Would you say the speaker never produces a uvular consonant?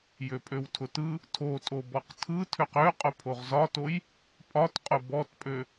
no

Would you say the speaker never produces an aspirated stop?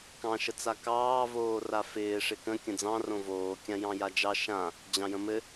yes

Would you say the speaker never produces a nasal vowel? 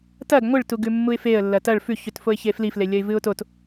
yes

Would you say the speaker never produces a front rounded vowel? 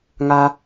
yes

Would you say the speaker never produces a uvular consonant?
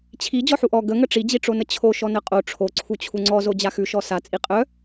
no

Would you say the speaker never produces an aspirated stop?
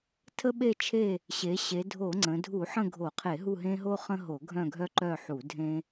no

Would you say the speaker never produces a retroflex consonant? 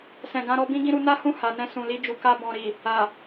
yes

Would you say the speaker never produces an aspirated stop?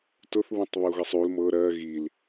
yes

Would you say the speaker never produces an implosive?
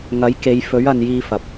yes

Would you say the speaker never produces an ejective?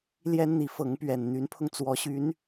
yes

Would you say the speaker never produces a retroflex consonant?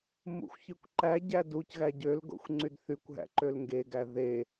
yes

